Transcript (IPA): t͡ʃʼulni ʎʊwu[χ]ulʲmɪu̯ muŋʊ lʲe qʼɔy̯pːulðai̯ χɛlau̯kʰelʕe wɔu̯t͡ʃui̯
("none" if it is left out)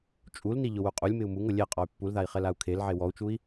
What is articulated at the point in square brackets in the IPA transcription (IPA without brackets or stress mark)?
qʼ